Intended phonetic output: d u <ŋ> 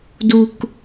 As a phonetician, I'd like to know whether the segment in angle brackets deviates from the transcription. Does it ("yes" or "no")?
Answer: yes